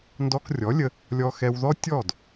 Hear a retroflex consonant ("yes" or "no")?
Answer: no